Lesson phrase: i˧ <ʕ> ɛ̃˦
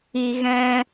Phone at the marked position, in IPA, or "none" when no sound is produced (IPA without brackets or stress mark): ɣ